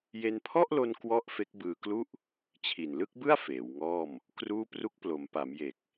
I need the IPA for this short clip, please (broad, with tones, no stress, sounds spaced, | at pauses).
j e˧ n pʰ ɔ˥˩ ʔ l o˧ n k w ɔ˥˩ ʔ f e˦˥ k̚ b ɯː˧ k l u˥˩ ʔ | t͡ɕʰ i˨˩ n l ɯ˥˩ k̚ b ɯ˥˩ a̯ f eː˩˦ w ŋ ɔː˥˩ m | k r uː˥˩ p r u˦˥ k̚ p l o˩˦ m p a˩˦ m j e˨˩ k̚